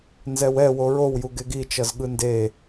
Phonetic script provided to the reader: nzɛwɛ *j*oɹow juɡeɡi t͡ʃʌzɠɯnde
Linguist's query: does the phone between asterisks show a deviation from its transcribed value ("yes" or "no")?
yes